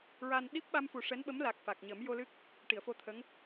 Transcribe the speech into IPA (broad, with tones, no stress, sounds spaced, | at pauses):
ɹ a˧ n ɗ i˦˥ p̚ ɓ a˧ m f u˨˩ ʂ ɛ˧˥ n ɓ ə˧˥ m l a˨˩ k̚ f a˨˩ k̚ ɲ ə˨˩˦ m j o˧ l ɨ˦˥ k̚ | ʈ i˨˩˨ ə̯ f o˧ t̪ʰ ə˧˥ ŋ